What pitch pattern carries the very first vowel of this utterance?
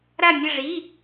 falling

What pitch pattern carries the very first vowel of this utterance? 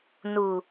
low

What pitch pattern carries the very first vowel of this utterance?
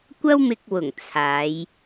high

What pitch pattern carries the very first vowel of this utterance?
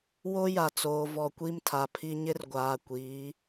high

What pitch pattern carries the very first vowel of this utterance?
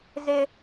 high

